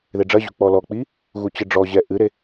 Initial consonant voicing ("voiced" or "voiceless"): voiced